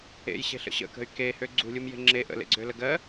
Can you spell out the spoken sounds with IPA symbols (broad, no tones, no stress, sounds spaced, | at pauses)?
ḛ j ɕ e̤ ɬ ə̰ ɕ ə̰ k ə̤ y̯ k e h ø ɡ͡ǀ ṳ lʲ u m j e̤ ŋ͡ǁ e ʔ ə̰ l ḛ ɡ͡ǀ ø l ə ɡ ɜ